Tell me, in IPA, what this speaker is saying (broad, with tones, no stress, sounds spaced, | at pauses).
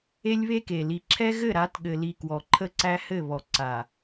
e˦ lʲ β e˦ k e˨ l i˨ ǁʰ ɛ˦ ɣ ɘ˦˨ ɾ a˨˦ t ɠ ɘ˨ l i˨ k w ɔ˨ ǃʰ ə˦ ǀ æ˦ h ɘ˦˨ β ɔ˨ ǀ a˨